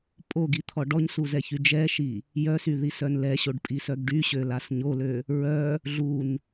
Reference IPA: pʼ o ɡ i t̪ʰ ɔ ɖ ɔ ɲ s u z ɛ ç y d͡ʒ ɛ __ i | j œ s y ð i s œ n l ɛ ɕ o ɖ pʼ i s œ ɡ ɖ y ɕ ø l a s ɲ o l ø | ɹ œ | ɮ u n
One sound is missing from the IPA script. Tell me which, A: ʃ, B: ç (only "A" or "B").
A